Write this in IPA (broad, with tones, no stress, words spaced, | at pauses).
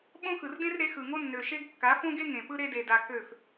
ɓõ˦xɯ˨rdẽ˦r ɾe˨˦xɯ˨ŋo˦ nːø˨ʃe˦ɡkːa˨˦ fõ˦ɡe˦ ŋẽ˨pɯ˦ɾe˦de˨ da˨ kø˦˨f